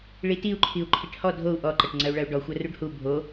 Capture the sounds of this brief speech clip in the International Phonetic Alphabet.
ɭ i t i u̯ ǃʰ i u̯ ǃʰ i ʈ h ɔ dʱ o u̯ ʔ ɔ ǃ ɐ ʈ ŋ͡ǀ ɐ u̯ ɭ ɐ u̯ ɖ ɔ xʷ ɐ r u ɖ h u bʱ o

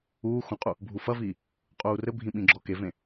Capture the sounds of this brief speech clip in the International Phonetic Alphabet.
uː x õ qʼ u | bʱ u f ɐ v iː | qʼ uː r ɘ bʱ ĩ ɓ ĩ ɡ͡ǁ ɔ k e v ẽ

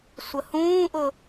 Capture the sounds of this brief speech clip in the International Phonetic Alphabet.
sʷ ə h ũː ʔ ʊ

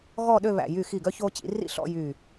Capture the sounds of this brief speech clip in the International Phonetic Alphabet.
ɣ ɔ˥˧ ɗ ø˥˧ β æ̰˧˩ j y˧˩ x i˧˩ ɡ œ˧ ç o˧ t͡ɕ ḭ˩˧ r ḭ˥ ɬ ɔ̰˥˧ j y˧˩

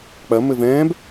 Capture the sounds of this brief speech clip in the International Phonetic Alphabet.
k͡p ɐ m ɘ v ɛ̃ː b

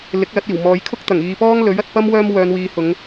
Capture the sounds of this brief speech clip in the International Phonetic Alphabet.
l ɪ˨˥ k̚ l ɐ˨˥ t̚ iː˨˩ w m ɔː˨˧ j kʰ ʊ˥ k̚ t̪ ɐ˨˩ ŋ iː˨ p ɔː˥ ŋ l ɵ˨˥ ɥ ɐ˨ t̚ p ɐ˥ m w œː˥ m w œː˨˧ n w iː˨˧ h ʊ˨˧ ŋ

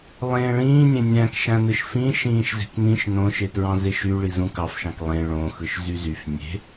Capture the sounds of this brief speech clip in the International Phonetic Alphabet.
lˠ ẽː ɭ ĩː nʲ ẽ nʲ æ̃ k ʃ æ̃ n ɯ ʃ f ĩ ʃ ĩː ʃ z e̤ k n ĩ ʃ n õ ʃ e t ɹ ɑ̃ z e ʃ y ɭ i z ũ k ɑ f ʃ ɑ̃ k lˠ ẽ ɭ õ x ɯ ʃ z y z y f nʲ e̤

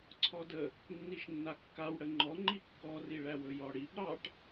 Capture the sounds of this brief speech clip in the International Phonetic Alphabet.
ǀʰ ɔ d ə | nː i ʃ nː a kː a w ɽ ə ŋ͡ǃ ɔ ŋ͡ǃ i kː ɔ r i ɭ æ w ɵ j ɔ ɽ i b ɾ ɑ ʈ

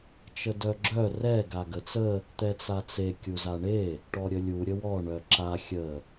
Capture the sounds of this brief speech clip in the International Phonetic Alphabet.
t͡ʃ ə d œ ɡ͡ǁ œ r ɛ ɡ a ɡ ə t͡s ə | t̪ ɛ t͡s a t͡s e kʲ u z a ɳ e | ʈ ɔ ɾʲ ə lʲ u ɾʲ ə w ɔ ɳ œ ǁ a xʲ ə

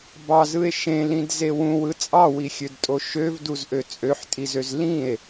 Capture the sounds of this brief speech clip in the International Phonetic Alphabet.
b ɑ z ɯ e̯ ʃ ẽ l ĩ d z e w ũ w ɯ t͡sʼ ɑ w i xʲ ø d tʼ o ʃ ø v d u z ʔ ø t͡sʼ ø ħ tʼ i z ø z l ĩ e̯

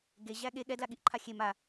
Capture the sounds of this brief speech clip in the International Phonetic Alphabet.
ɡ e ʑ æ ɠ e ɠ ɛ d l a ɠ i ʔ ǃʰ a xʲ e m a

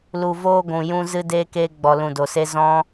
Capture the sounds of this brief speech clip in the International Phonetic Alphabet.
l u˨ v oː˧ ɡʷ ũ˨ j ũ˧ z ɨ˧ d eː˧ k eː˧ ɡ͡b ɔ˨ l ũ˨ d o˨ s e˧ z ɔ̃˦

